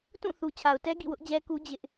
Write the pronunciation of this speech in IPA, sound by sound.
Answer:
t ũ˦˨ θ u˨ t͡ɕʰ a˨ ʊ̯ t ɛ˦ ɡ ḭ˦˨ w ʊ˦ ʔ d͡ʑ ɛ˦ k u˦ d͡ʑ ɪ˦ ʔ

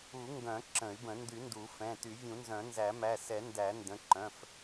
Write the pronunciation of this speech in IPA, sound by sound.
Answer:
u˨˩˦ ŋ ɡ œ̃˨˩˦ ǁ ə̃˨˩˦ y̯ b ə̃˨˩˦ n d y˨˩˦ n d u˨˩˦ f ɛ̃˩˧˩ t y˨˩˦ vʲ ũ˨˩˦ n z œ̃˨˩˦ n z æ˨˩˦ m æ˩˧˩ s ɛ˨˩˦ n d æ˨˩˦ n d ə̃˩˧˩ ǃ œ̃˩˧˩ f

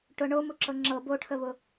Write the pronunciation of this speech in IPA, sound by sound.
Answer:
ʈ ʊ ɳ o m ʊ ǁ ɤ ŋ͡ǁ ɤ b o ʈʰ ə β ʊ

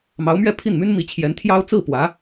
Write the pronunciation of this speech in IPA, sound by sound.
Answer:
m ɑ˧˥ ʊ̯ m ɥ ɛ˥˧ pʰ i˥˩ n m y˥ n m i˧˥ t͡ɕʰ j ɛ˧˥ n t̪ʰ j ɑ˥ ʊ̯ t͡s ɹ̩˥˩ p w ä˧˥

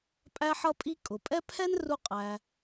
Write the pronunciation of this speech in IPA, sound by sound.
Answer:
pʼ æ˥ ħ ʌ˥ pʼ i˥ kʼ ʊ˩ pʼ ɛ˥ pʰ ɛ˥ n r u˧ qʼ æ˩

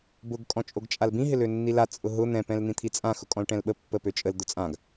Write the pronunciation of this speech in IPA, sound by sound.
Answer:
b ʊ ɡ kʼ ɔ̃ t͡ʃʼ o ɡ t͡ʃʼ a l b ĩ ɦ ɪ l ø nː i l a t͡sʼ ʊ ɦ ʊ n̪ ɛ̃ p ɛ̃ l n̪ ĩ t̪ʰ i t͡sʼ ã x ʊ kʼ ɔ̃ l ʈ ɛ̃ l ɓ ə pː ə p ø t͡ʃʼ ə l d̪ ʊ t͡sʼ ã ɡ

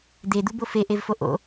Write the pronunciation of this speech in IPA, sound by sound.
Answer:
d̪ e d̪ u b o f e ʔ e v f o ʔ o̰

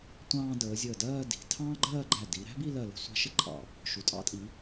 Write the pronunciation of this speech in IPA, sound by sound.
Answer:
tʷ ɑ̃ː˧ d əː˩˧ zʲ əː˧˩ d ɜː˥˧ d i̤˩˧ tʰ ɑ̃ː˥ ɡ͡ǃ ɜː˥˧ ɡ͡ǃ æ˧˩ d i˩˧ ɾ æ̤˥ b i˥˧ l ɜ˧˩ l ə̤˧˩ sʷ ɑ̤˧˩ ʃ ə˥ ǃʼ ɑ̰˧˩ | ʃ u˩˧ tʼ ɑ̰˥ tʼ i˩˧

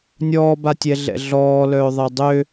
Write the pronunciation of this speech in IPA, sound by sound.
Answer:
nʲ ɔː b a tʲ ɛ ɮ ɛ̰ ɮ ɔː l œː ðˤ ɛ dˤ ø

